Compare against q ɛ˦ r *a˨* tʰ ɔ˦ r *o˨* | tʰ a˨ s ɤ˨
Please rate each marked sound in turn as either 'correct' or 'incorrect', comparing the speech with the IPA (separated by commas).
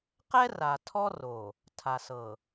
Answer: correct, correct